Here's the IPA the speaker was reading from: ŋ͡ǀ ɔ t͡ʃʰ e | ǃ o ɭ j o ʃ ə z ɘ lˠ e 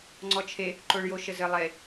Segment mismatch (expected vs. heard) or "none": none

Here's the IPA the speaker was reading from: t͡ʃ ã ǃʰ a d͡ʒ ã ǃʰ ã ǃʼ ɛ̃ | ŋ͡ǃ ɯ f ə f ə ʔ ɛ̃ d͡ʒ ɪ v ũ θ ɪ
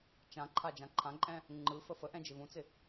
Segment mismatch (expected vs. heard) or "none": θ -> t͡s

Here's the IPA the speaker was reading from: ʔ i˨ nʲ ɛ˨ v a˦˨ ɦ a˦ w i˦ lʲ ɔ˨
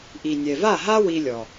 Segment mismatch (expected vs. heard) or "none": none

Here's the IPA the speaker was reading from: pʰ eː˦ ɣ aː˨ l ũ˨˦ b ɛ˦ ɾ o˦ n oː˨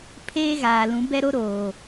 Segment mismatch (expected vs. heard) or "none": n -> ɾ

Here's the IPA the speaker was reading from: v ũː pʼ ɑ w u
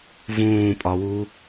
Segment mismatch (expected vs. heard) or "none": ɑ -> ɒ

